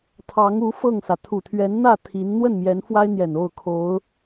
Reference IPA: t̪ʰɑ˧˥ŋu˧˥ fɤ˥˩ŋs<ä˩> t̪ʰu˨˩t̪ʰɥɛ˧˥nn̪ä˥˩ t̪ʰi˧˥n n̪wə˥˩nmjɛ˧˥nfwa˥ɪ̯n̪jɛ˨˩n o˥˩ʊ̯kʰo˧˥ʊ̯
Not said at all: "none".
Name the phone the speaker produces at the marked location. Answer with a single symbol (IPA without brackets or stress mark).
ä˩